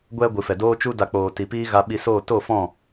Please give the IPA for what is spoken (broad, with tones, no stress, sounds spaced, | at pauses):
ɡʷ ɛ˧ ɡʷ ɨ˨ f ɛ˨ d oː˧ t͡ʃ u˧ d a˨ k͡p oː˨ t i˨ p iː˦ ɣ a˧ ɓ i˧ s oː˦˨ t o˦˨ f ɔ̃˦˨